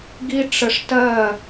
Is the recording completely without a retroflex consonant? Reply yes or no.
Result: no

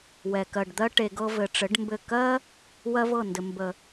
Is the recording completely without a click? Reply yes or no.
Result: yes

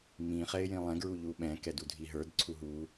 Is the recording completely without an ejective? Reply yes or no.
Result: yes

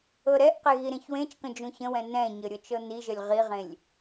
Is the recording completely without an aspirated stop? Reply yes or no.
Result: yes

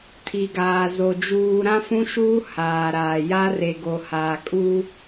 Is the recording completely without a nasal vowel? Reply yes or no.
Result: no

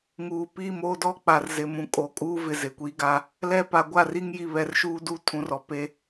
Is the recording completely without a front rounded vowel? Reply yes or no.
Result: yes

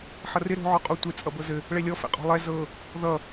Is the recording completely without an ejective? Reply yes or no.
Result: no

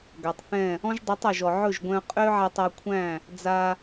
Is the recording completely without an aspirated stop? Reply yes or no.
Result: no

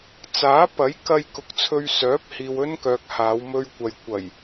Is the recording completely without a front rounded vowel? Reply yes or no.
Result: no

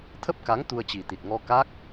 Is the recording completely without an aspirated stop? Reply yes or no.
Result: no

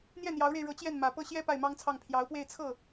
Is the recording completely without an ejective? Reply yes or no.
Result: yes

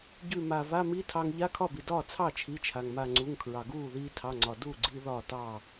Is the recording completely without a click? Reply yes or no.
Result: no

